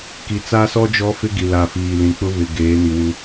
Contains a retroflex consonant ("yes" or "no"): no